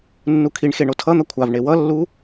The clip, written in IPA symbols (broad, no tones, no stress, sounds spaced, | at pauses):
nː u kʰ i ɳ x e ɳ o tʰ ʌ n̪ ʌ kʷʰ a v ɳ e w ʌ lː u